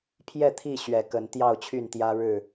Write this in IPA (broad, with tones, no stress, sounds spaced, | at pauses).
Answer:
pʰ j ɛ˥˨ t̪ʰ i˥˨ ɕ ɥ ɛ˨˩ k ə˨˦ n t̪ j ɑ˥˨ ʊ̯ t͡ɕʰ y˥˨ n t̪ j ä˦ ɻ ɻ̩˥˨